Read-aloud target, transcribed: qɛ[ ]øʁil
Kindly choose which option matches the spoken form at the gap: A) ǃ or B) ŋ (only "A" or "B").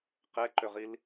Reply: A